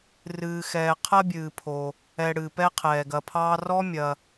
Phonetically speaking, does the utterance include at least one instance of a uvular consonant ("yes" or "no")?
yes